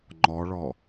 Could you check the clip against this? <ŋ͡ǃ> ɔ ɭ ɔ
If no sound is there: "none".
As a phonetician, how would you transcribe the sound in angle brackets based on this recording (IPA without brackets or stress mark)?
ŋ͡ǃ